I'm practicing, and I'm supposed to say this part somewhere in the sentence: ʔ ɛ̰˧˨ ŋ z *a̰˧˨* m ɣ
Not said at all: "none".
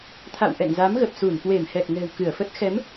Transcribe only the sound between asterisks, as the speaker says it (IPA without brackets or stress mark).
a˨˦